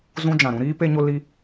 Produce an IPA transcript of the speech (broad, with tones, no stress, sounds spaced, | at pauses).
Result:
z ũ˧ d͡ʒ ã˨ ɾ ũ˦ ɾ iː˦ p e˧ ɲ o˧ l i˧